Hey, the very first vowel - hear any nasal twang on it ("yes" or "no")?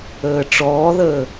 no